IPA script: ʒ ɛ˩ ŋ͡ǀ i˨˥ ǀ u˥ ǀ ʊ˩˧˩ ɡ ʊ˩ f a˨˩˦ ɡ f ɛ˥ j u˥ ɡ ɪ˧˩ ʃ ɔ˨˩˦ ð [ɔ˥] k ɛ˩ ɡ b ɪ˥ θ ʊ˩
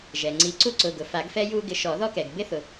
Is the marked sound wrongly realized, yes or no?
no